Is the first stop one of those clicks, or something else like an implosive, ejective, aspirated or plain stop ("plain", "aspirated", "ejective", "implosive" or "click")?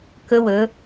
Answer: plain